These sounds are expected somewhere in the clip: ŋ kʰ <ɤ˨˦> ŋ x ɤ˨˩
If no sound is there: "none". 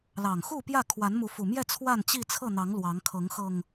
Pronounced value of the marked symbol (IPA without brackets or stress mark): ɤ˨˦